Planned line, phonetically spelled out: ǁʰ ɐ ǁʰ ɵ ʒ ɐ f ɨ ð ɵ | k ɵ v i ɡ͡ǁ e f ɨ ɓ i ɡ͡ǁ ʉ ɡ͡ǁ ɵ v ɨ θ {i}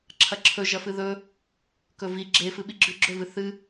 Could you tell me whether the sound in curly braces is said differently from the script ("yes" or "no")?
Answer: yes